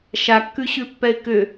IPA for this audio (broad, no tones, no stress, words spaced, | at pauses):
ʃakːʉɕʉ pːɛɪ̯kʏ